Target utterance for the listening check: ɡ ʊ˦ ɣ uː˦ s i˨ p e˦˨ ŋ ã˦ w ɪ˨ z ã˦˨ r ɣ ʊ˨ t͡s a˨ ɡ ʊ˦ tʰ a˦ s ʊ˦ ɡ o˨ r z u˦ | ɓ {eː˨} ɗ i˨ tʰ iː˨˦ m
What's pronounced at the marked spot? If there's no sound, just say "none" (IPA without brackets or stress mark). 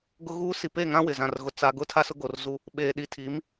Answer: eː˨